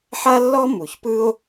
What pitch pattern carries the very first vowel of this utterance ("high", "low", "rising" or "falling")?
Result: high